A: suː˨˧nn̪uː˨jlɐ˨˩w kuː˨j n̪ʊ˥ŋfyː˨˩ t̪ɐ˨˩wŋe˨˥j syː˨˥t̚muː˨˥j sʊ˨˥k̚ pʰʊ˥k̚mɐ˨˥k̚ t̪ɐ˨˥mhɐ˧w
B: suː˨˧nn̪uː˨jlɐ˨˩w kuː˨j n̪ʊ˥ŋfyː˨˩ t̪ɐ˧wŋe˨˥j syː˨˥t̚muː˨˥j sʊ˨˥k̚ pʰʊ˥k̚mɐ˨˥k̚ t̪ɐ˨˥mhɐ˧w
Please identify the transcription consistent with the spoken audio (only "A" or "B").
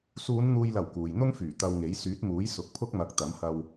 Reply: B